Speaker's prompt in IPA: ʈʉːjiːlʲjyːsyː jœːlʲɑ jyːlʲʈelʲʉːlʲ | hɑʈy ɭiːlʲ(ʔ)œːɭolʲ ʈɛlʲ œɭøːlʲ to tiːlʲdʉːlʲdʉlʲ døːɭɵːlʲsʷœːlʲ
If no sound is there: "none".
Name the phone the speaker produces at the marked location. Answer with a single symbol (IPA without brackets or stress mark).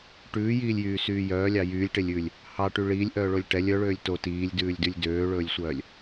ʔ